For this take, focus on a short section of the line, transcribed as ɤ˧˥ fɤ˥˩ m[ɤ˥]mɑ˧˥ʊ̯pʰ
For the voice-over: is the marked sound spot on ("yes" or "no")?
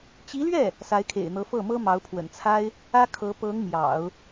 yes